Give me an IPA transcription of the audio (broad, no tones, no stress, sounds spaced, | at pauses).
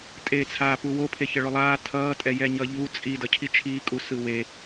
tʼ eː t͡sʰ aː p u w o pʰ e ç ʌ ɭ o lˠ aː tʰ ʌː tʼ ɛ j ɛ ɲ ʌ ʎ u t͡sʼ i d ʌ cʰ i t͡ʃʰ iː kʼ u s ɯ w e